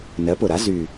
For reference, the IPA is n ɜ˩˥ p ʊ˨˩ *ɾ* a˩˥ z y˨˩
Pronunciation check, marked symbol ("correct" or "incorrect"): correct